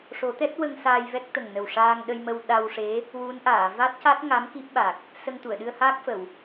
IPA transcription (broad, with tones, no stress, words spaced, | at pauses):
ʂo˨˩˦t̪ɛ˦˥t̚wə˧ŋ saː˧jvɛ˦˥k̚ t̪ə˨˩ŋnə˨˩wʂaː˧ŋ ɗə˧jmə˧w ɗa˧wʂe˧˥ | wu˧˥nʔaː˨˩˨ va˦˥t̚ca˦˥t̚ŋa˧˥m ki˦˥p̚ɓa˨˩k̚ | sə˧ŋ t̪u˨˩˨ə̯ɗɨ˧ə̯ haː˦˥k̚fə˨˩˨w